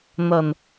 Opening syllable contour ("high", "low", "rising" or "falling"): low